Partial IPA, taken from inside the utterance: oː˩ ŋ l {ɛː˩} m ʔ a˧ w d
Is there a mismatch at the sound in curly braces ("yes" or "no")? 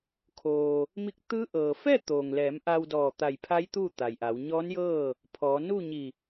yes